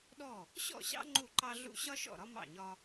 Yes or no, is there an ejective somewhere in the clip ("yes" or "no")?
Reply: no